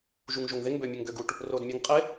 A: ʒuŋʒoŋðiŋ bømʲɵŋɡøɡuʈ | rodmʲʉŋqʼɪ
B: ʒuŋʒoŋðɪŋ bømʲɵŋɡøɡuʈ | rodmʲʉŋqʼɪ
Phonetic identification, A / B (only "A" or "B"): B